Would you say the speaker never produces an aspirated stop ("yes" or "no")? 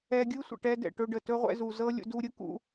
yes